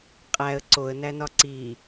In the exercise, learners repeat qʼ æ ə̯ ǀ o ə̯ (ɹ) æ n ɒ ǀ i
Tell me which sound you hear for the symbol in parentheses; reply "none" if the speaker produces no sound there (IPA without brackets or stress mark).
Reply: n